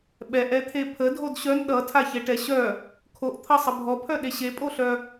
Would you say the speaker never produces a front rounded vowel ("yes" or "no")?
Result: no